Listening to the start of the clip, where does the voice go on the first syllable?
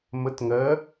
rising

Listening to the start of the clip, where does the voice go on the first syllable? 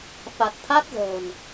low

